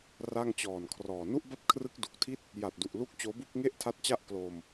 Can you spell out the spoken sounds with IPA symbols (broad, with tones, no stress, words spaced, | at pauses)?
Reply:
ra˥˩ŋt͡ɕɔː˨˩nkʰrɔː˨˩ nu˥˩ʔba˥˩p̚kʰrɯ˦˥k̚ du˨˩k̚tʰi˥˩t̚ | ja˨˩t̚du˨˩ʔlu˦˥k̚ t͡ɕoː˦˥bu˥˩k̚ ŋe˥˩ʔtʰa˦˥t̚t͡ɕa˥˩ʔ klo˧m